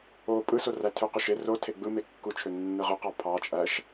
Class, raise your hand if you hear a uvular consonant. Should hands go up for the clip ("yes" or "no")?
yes